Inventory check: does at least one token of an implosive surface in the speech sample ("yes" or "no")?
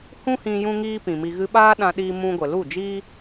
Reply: yes